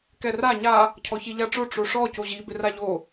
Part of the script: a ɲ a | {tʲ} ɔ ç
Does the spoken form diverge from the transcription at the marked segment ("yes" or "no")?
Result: yes